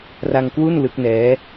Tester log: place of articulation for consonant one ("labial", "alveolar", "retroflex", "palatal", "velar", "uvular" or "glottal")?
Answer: alveolar